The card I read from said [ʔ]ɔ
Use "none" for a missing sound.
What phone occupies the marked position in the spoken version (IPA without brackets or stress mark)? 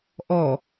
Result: ʔ